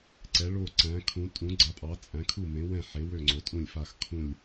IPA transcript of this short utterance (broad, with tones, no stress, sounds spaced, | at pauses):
ǀ ɛ˩˧ ɭ o˧˩ ǀ æ̃˩˧ kʰ ũ˩˧ tʼ ũ˩˧ ɡ͡ǀ a˩˧ pʼ ɑ˩˧ t͡sʼ æ̃˩˧ kʰ u˧˩ m ẽ˩˧ w ɛ̃˧˩ ħ e˩˧ w ø˧˩ ŋ͡ǀ o˩˧ tʼ ũ˧˩ lʲ f a˧˩ x kʰ ũ˧˩ lʲ